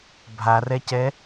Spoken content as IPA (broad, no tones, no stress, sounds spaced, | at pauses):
bʱ a r ɛ c ɛ